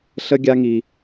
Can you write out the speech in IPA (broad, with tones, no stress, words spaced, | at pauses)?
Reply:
ɬə˦ɡʲa˧ŋi˨